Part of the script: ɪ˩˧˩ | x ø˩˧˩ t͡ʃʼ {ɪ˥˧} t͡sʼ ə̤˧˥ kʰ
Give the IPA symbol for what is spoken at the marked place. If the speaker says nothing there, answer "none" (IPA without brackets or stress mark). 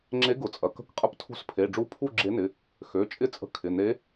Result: ɪ˥˧